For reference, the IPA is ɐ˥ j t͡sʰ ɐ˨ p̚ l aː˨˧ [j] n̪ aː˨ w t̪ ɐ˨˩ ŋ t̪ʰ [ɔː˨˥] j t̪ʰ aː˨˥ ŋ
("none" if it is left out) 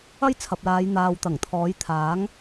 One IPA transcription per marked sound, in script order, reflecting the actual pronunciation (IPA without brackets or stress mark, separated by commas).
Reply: j, ɔː˨˥